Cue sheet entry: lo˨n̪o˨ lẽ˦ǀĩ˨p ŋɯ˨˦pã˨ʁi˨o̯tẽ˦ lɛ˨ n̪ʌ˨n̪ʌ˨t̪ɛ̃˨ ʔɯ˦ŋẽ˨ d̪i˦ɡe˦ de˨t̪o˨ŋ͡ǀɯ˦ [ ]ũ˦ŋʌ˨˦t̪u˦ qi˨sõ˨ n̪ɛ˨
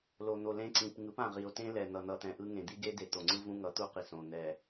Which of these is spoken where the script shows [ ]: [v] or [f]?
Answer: v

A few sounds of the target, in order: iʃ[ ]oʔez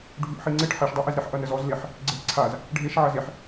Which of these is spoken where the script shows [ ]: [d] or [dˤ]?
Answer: dˤ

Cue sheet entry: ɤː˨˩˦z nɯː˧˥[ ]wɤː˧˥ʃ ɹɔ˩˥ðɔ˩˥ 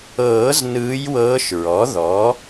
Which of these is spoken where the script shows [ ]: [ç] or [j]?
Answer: j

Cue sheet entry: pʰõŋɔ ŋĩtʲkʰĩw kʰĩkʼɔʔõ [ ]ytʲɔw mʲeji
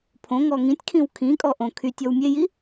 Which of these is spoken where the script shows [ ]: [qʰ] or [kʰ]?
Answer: kʰ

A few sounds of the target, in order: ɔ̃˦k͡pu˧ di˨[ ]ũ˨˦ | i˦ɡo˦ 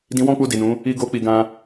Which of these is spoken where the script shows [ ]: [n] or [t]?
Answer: n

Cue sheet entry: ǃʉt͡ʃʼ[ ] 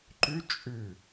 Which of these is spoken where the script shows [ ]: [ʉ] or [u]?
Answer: ʉ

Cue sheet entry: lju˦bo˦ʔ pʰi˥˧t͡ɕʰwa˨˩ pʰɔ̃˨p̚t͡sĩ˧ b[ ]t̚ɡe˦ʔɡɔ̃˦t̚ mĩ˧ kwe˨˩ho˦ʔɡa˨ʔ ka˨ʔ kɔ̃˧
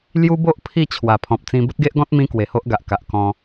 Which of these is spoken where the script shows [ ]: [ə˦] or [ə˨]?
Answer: ə˦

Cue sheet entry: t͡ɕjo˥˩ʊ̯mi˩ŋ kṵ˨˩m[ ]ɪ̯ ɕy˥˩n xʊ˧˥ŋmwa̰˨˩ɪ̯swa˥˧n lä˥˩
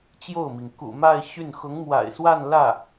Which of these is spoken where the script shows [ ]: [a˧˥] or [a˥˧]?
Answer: a˥˧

